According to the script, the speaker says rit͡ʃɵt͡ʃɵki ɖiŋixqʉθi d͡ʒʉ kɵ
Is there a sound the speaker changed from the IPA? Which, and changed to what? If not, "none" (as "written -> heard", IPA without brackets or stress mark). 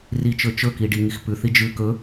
q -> p